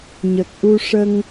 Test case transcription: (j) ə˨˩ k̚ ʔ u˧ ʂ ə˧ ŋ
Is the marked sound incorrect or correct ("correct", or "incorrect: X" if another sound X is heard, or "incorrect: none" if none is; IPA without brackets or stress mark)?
incorrect: ɲ